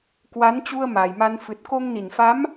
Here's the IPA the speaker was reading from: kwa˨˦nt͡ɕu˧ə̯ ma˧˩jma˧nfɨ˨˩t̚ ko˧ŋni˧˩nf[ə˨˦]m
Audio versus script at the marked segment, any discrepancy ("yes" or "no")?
yes